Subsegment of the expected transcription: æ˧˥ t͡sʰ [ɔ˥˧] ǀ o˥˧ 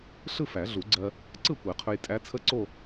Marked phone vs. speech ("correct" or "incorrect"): incorrect